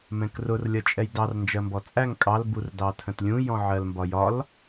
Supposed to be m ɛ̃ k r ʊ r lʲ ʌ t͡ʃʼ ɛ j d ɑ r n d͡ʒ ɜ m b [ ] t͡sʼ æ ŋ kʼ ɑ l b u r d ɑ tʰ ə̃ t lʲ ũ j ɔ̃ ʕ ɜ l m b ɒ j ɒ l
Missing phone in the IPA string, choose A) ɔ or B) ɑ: A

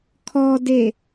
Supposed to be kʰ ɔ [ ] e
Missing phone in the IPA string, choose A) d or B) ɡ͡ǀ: A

